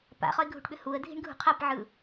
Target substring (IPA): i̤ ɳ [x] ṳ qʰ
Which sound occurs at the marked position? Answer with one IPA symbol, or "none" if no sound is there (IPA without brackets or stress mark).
ɡʱ